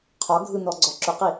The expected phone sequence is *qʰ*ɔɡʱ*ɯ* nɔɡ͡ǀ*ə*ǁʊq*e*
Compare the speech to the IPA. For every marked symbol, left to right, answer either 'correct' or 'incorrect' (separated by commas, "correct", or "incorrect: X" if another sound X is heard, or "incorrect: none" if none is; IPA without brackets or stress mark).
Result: correct, correct, incorrect: ɔ, incorrect: i